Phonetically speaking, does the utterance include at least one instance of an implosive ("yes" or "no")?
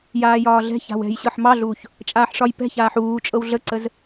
no